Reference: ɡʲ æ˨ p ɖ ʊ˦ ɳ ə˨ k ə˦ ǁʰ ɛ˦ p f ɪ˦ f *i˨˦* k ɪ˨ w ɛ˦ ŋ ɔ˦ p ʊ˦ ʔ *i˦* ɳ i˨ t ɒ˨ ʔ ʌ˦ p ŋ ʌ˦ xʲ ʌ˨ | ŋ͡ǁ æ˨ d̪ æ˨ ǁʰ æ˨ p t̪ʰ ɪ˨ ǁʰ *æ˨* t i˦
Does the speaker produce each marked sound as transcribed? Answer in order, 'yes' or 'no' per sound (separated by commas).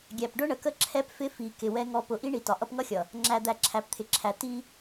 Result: no, yes, yes